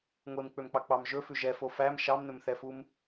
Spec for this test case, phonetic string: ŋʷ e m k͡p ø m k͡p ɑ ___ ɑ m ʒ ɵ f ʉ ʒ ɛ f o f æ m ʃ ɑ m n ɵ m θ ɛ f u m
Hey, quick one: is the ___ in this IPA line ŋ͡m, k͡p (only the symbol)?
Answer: k͡p